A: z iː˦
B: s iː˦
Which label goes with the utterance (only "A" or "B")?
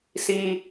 B